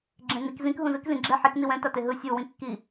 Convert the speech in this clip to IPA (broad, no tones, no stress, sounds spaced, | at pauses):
ɡ͡ǁ ẽ n i k z ĩ k ɦ ũ z ɯ k z ĩ ɡ͡ǁ ɛ ħ i k n i w ɛ̃ t a t e ɦ ɯ sʲ u w ĩ kː i